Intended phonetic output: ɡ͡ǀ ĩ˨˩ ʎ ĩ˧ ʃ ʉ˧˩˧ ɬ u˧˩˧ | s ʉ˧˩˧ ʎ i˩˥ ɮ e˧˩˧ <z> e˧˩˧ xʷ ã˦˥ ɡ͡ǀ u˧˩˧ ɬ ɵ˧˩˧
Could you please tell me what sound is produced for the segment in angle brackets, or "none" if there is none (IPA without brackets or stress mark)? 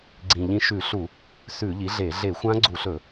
ɮ